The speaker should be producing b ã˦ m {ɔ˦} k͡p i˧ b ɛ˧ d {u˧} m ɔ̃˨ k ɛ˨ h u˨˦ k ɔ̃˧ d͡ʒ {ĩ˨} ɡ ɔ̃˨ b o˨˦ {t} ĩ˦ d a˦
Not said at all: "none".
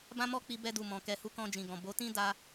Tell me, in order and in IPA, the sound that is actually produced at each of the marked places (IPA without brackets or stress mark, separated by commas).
ɔ˦, u˨, ĩ˨, t